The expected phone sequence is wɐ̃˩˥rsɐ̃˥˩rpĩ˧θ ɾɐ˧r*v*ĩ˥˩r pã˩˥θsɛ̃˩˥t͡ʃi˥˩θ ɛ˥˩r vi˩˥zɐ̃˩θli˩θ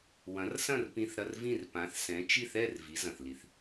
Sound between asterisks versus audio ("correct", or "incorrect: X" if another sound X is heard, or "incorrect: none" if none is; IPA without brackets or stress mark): correct